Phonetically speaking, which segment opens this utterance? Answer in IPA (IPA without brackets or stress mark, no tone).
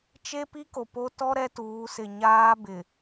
t͡ʃ